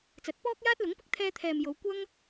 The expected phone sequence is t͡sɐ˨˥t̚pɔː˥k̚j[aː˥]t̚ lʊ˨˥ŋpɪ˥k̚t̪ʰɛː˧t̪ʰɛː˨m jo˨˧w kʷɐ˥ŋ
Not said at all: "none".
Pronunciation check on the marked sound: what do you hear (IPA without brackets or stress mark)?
aː˥